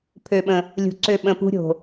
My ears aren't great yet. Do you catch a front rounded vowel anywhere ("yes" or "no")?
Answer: yes